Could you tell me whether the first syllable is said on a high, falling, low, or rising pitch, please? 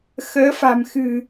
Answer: rising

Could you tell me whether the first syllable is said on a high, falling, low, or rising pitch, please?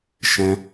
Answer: high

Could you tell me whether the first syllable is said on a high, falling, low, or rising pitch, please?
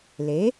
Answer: rising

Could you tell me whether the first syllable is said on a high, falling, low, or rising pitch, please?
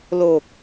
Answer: low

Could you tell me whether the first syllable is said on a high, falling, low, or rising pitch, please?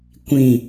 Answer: low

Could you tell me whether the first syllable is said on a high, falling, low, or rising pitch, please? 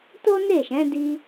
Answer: high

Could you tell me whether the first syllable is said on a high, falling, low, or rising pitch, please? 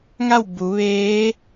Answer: falling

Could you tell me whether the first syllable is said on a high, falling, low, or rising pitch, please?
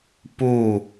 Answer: falling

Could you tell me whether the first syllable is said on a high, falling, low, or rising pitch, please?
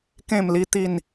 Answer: falling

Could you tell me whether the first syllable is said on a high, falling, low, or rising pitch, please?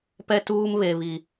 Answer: high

